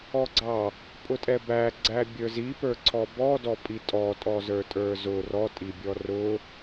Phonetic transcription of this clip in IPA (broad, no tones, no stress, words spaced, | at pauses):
ɔɡ͡ǀɑ | pʼʊtʼɛbæ ɡ͡ǀæbʲə˞zipə˞ ǀʰɔbɔ dɔpʼitʼɔtʼɔ zə˞tʼə˞zʊ rɔ tʼibʲɔrʊ